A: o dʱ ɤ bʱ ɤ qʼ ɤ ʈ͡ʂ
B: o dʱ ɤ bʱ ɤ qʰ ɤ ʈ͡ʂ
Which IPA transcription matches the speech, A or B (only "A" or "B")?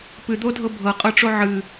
A